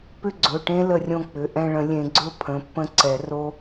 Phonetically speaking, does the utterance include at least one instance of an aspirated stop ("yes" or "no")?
yes